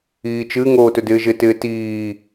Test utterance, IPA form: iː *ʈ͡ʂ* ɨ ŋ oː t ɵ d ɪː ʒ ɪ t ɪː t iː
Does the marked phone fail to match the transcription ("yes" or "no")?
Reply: yes